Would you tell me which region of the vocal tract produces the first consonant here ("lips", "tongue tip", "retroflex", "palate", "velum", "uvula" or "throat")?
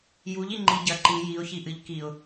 palate